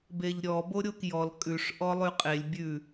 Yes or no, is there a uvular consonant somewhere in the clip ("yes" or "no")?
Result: yes